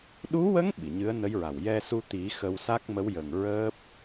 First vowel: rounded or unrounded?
rounded